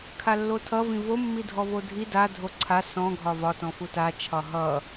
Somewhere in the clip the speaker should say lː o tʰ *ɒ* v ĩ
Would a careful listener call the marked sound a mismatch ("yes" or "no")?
yes